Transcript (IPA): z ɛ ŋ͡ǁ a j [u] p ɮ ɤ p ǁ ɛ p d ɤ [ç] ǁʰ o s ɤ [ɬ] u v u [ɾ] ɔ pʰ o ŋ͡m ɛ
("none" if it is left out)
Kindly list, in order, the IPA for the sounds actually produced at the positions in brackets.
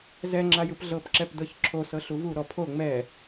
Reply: ɯ, ç, ɬ, ɾ

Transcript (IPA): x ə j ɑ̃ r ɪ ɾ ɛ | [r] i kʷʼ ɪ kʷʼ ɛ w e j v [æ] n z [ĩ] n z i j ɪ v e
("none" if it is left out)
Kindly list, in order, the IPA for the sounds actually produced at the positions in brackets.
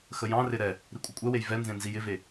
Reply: ɾ, ɛ, ẽ

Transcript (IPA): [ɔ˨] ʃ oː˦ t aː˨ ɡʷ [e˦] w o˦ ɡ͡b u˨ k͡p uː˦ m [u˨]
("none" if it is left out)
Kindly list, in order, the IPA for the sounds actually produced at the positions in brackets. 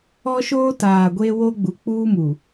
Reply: ɔ˦, e˦, u˨

